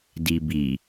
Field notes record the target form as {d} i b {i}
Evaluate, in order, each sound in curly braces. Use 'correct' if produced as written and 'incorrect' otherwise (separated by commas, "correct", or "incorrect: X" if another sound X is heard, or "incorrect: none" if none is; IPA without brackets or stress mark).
correct, correct